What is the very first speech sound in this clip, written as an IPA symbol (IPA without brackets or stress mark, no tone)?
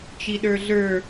t͡ʃ